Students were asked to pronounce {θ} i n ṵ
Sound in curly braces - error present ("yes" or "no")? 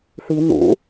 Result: no